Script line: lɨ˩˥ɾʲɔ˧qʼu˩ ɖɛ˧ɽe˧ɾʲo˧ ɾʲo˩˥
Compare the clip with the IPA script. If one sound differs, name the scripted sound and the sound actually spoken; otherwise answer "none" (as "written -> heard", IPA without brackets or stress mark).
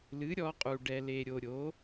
ɽ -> l